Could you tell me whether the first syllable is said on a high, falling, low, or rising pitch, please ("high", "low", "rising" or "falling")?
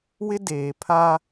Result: high